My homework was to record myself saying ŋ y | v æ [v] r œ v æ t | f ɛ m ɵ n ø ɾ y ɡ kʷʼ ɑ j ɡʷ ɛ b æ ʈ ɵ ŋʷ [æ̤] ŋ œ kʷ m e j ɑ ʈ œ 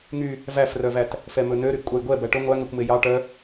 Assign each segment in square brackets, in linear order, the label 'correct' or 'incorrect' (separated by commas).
incorrect, incorrect